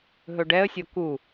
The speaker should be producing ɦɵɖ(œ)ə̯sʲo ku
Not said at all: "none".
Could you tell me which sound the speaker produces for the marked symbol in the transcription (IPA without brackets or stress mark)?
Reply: ɛ